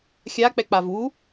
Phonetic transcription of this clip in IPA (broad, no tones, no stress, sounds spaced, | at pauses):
xʲ a k͡p ɛ k͡p a v u